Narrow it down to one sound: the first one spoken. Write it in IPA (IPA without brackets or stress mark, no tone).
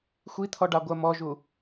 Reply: xʷ